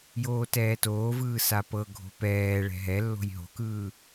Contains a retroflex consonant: yes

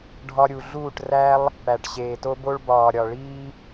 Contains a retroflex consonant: yes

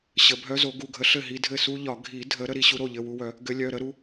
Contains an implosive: no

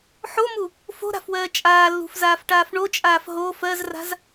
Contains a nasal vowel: no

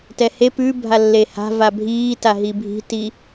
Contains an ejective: no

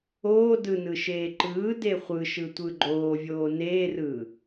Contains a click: yes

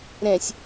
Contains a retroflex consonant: no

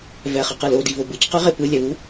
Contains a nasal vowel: no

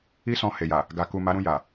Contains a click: no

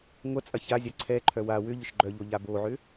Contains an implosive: no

